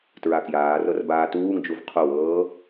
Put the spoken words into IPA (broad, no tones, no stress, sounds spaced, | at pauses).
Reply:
t ɹ a k j aː r ɤ r b aː t uː ŋ d͡ʒ u v qʰ o w ɤː